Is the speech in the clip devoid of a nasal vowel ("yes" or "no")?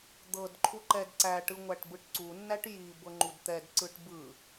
yes